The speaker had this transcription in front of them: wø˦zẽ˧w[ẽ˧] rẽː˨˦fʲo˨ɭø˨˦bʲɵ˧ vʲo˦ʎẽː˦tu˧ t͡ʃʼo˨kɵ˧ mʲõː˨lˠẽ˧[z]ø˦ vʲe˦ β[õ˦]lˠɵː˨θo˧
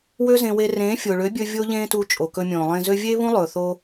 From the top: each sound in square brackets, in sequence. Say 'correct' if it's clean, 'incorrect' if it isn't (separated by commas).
incorrect, correct, incorrect